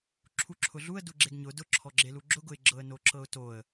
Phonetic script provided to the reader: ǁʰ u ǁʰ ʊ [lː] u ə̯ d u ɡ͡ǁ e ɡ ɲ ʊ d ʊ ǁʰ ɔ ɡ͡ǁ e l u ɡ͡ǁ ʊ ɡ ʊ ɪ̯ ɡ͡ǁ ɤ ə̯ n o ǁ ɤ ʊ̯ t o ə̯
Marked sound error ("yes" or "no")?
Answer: yes